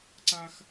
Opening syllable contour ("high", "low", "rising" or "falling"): high